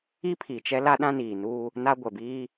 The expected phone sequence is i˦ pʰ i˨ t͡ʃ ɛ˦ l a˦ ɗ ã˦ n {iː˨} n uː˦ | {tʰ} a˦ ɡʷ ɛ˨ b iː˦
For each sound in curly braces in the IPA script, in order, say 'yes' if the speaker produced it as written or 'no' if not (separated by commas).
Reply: yes, no